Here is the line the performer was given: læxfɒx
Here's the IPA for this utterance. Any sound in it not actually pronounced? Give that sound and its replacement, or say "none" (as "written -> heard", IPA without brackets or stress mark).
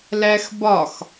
f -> b